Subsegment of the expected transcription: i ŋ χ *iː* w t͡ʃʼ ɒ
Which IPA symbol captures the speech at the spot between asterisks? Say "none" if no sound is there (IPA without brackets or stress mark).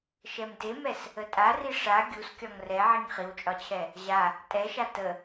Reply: i